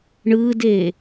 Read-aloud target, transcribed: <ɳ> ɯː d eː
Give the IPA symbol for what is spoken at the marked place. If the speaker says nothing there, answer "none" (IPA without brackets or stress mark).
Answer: ɳ